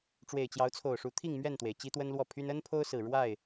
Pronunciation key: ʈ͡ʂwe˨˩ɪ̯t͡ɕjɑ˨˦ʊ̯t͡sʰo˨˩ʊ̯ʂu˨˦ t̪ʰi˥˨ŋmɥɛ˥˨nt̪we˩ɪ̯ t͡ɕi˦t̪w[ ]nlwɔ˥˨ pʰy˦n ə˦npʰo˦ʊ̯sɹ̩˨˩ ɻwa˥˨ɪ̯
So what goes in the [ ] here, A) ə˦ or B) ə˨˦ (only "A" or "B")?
A